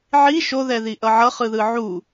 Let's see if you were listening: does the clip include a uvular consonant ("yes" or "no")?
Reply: yes